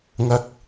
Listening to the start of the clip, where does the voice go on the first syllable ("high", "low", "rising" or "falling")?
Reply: low